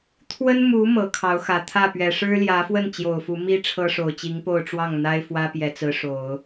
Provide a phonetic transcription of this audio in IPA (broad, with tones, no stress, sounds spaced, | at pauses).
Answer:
t̪ʰ w ə˥ n m u˧˥ m ɤ˧˥ kʰ ɑ˧˥ ʊ̯ x ä˨˩ t̪ʰ ä˥˩ p ɥ ɛ˨˩ ʂ ɻ̩˥ l j ä˧˥ f w ə˥˩ n t͡ɕ j o˨˩ ʊ̯ f u˧˥ m i˥ ʈ͡ʂʰ ɤ˥ ʂ o˨˩ ʊ̯ t͡ɕ i˧˥ ŋ p o˥˧ ʊ̯ ʈ͡ʂ w ɑ˥˩ ŋ n̪ a˥ ɪ̯ f w ä˥ p j ɛ˧˥ t͡s ɹ̩˧˥ ʂ o˨˩˦ ʊ̯